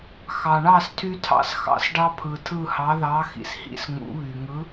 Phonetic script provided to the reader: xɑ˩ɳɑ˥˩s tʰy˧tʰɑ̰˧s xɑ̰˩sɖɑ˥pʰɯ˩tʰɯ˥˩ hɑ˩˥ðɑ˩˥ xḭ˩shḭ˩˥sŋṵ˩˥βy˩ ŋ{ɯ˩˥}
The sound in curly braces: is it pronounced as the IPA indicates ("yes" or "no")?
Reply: yes